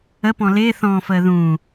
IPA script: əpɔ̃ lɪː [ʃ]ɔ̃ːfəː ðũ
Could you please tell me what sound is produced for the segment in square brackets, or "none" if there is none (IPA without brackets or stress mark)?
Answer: θ